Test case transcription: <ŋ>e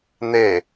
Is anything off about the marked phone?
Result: yes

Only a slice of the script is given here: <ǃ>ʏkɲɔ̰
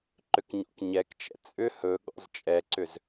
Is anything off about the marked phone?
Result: no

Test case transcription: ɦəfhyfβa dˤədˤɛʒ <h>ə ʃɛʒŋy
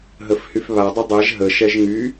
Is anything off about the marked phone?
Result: yes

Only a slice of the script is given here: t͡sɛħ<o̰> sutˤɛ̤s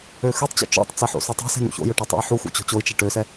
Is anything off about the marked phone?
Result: no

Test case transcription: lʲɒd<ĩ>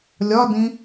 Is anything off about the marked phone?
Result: no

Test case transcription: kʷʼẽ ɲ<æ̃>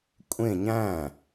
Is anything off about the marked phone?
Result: no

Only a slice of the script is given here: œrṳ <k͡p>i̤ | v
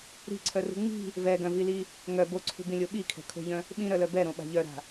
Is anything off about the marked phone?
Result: yes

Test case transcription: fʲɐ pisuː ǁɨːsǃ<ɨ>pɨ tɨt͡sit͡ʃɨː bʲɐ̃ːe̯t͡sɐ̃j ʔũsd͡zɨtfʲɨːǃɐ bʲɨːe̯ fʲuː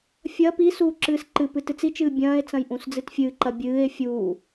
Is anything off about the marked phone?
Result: no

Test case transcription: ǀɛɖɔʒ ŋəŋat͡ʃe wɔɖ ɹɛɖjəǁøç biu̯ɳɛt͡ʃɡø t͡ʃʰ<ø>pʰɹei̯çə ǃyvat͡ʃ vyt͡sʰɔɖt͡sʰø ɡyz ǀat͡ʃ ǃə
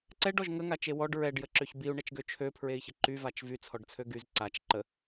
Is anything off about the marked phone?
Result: no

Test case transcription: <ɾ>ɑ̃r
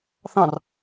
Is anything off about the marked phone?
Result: yes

